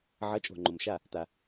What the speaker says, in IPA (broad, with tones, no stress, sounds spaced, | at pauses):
ʕ ʌ˩˥ t͡ʃʼ o̤˩ ŋ͡ǃ o˩ m ʃ a˥˩ | t a˩